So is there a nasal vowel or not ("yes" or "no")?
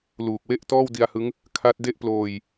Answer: no